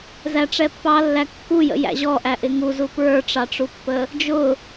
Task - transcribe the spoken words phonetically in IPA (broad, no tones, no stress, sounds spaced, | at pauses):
z æ ʈ͡ʂ ɛ pː ɑ lː æ kː u j ə̰ j æ̰ ʑ ɔ ʔ æ ʔ ɪ ŋ u z u p ɹ ə˞ ʈ͡ʂ ɑ ʈ͡ʂ u pː ə | d͡ʒ ʊ